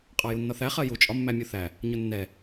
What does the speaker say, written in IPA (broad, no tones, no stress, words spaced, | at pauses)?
qʼɑjunːɒθæ χɜju t͡ʃʼɒmːæmʲuθæ | ɲʊnːɛ